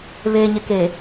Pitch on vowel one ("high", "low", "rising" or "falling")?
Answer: low